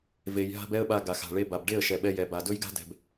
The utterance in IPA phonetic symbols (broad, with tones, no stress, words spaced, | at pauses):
ve˨jɦa̤˧b ɛ˦ə̯ɓa˧ ɡa˨xa̤˨ɭe˧ ba˨bɖe˦˨ə̯ ʃɛ˨ɓɛ˧jɛ˨ba˨ dɵ˦jɡa̤˦dɛ̤˨b